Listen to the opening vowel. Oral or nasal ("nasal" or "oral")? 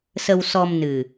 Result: oral